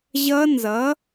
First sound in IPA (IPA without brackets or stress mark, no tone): ʑ